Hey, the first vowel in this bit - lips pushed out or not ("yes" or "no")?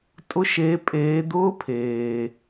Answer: yes